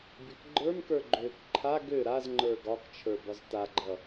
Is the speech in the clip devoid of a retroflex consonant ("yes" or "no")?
yes